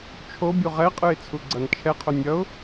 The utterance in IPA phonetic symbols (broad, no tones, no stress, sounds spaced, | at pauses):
t͡ʃʰ o bʲ u ʁ ɛ qʼ ɯ ɪ̯ t͡sʰ u ɡ͡ǀ ʌ n t͡ʃʰ ɛ qʰ o nʲ ʌ ʊ̯